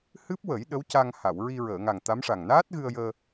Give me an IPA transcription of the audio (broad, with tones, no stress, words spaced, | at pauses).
hɨ˦˥p̚wə˨˩˦j ɗə˧˥w ca˧ŋha˨˩˨w ɹi˧ɹəː˨˩˨ŋa˨˩ŋ t̪a˧˥mʂa˨˩ŋ naː˦˥t̚ ɣɨ˧ə̯jəː˧